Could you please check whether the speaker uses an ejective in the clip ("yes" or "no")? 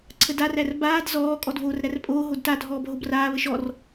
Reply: yes